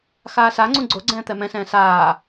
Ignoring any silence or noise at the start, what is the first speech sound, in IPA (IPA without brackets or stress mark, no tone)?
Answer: x